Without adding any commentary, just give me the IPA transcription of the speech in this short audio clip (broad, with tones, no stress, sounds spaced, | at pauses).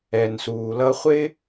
ɛ˨ n s uː˨ l ʌ˦ χʷ ɪ˥